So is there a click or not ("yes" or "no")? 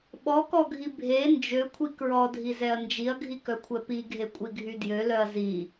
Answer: no